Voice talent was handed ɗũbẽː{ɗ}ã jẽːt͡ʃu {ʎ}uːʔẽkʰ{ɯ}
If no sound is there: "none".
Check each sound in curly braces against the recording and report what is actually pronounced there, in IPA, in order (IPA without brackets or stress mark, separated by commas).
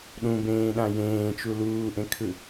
ɗ, l, ɯ